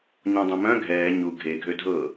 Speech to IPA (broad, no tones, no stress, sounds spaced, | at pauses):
ɲ ɔ̃ dˤ ə̃ m œ̃ ɡʱ ɛː ɲ u ɡʱ e ɡʱ ø dʱ ɤ